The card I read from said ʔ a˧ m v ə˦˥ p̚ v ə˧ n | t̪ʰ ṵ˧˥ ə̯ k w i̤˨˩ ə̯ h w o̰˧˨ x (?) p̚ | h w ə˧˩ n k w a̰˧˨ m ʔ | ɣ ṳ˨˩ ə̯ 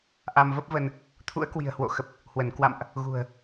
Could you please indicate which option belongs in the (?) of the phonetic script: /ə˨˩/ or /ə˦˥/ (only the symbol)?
ə˨˩